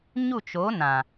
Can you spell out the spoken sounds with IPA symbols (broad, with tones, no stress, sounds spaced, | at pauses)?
ɲ u˦˨ t͡ʃ o˨˦ n ã˨